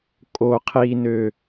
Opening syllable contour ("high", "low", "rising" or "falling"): low